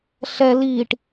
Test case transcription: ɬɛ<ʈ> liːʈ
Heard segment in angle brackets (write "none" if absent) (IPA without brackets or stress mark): none